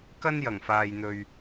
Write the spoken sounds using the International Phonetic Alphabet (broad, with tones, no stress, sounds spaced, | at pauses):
k ɐ˥ n j ɐ˨˩ ŋ f aː˨ j n̪ ɵ˨ ɥ